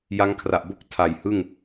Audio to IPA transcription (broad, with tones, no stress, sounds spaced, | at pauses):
j a˦˥ ŋ kʰ r a˨˩ ʔ b o˥˩ k̚ tʰ a˨˩ j h ɯ˥˩ ŋ